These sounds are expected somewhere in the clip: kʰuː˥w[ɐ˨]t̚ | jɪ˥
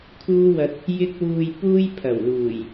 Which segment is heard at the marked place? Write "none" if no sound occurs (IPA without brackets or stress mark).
ɐ˧